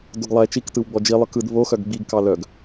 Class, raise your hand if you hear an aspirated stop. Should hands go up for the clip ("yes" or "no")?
no